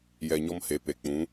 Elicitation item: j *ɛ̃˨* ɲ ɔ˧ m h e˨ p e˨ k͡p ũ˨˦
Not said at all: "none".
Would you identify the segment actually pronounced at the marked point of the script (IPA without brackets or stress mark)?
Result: ɛ˨